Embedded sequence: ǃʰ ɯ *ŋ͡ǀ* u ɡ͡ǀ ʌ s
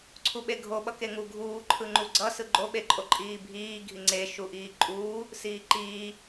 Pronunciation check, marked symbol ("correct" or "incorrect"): incorrect